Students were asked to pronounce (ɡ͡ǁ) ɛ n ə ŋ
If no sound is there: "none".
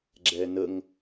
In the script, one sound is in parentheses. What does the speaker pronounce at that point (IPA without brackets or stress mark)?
ɡ͡ǁ